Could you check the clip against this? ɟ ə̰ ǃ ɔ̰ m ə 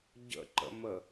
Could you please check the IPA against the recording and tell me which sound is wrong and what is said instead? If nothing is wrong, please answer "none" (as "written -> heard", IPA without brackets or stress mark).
ɔ̰ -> ə̰